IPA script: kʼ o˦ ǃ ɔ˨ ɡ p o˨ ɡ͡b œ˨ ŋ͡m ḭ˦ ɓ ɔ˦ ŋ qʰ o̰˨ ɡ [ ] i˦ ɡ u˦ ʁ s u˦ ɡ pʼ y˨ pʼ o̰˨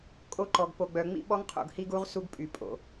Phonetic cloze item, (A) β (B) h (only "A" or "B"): B